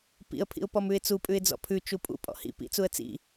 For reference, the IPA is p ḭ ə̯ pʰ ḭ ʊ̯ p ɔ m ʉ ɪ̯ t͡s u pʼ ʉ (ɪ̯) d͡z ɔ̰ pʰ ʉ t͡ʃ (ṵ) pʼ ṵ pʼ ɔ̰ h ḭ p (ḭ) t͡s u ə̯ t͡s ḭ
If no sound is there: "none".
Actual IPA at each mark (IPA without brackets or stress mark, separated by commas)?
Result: ɪ̯, u, ḭ